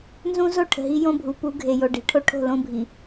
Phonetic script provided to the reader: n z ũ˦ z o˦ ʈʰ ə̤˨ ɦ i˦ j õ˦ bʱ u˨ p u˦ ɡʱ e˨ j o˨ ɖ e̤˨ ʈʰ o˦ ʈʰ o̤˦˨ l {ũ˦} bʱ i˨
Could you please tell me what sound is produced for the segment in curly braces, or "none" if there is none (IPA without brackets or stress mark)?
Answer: õ˦